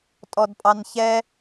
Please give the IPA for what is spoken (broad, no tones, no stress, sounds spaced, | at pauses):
tʼ ɔ d pʼ ɑ n ç ɛ